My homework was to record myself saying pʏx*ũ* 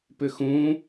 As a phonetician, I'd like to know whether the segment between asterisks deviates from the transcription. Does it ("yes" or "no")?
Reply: no